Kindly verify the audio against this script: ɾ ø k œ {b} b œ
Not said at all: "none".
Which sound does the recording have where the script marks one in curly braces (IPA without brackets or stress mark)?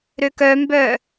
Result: m